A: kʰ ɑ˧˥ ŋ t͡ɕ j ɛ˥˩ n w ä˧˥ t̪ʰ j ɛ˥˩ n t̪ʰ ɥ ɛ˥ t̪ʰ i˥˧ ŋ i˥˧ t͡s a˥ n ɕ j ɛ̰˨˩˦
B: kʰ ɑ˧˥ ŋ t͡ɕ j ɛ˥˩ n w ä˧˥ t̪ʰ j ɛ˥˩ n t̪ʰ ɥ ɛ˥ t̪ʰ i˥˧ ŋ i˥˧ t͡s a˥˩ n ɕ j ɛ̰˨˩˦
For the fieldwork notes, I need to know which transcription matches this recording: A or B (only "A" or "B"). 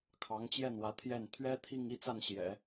B